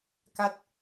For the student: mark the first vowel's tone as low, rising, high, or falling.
falling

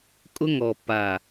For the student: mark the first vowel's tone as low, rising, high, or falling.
high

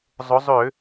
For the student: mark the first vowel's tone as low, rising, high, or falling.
rising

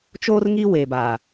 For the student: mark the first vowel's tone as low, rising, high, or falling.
high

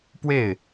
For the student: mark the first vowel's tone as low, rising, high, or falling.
falling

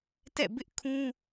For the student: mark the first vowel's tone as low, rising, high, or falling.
falling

